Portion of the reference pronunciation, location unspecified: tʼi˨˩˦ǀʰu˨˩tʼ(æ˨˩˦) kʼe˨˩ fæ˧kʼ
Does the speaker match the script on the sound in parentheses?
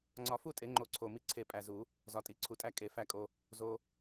no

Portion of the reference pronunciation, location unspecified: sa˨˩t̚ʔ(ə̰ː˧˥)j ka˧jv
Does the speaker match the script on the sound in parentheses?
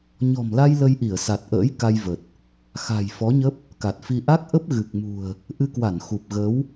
yes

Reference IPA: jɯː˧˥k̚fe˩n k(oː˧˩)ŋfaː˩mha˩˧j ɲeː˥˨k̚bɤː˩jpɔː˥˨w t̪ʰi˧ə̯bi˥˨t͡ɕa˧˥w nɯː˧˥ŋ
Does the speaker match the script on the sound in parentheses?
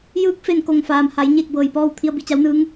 no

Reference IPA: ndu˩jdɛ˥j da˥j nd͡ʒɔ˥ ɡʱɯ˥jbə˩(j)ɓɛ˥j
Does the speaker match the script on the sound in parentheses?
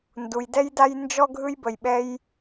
yes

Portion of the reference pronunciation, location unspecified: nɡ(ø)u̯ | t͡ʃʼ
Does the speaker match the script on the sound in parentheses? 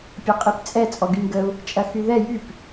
no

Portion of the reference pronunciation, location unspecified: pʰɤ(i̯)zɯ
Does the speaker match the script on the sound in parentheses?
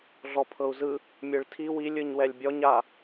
no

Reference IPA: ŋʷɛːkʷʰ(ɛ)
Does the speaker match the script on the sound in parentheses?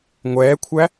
no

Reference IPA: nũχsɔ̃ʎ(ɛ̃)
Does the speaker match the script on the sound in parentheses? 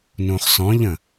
no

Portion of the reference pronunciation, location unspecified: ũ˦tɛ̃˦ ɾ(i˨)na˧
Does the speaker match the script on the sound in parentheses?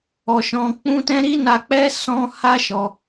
no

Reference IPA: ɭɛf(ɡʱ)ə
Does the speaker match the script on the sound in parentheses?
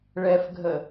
yes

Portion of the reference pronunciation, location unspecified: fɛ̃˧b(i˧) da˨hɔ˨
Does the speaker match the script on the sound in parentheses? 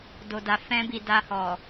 no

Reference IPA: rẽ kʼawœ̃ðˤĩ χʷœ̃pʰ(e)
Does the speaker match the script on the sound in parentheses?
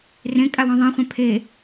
yes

